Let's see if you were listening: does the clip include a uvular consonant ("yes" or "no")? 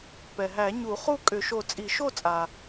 yes